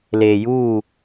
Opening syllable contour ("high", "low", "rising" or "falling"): low